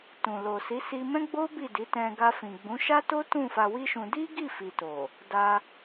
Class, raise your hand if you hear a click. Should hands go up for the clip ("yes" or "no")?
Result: no